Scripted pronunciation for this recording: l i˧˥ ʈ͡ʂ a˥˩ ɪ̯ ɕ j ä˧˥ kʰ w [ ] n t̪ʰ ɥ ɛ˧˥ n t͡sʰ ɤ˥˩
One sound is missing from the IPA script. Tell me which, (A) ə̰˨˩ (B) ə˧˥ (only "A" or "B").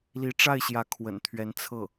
A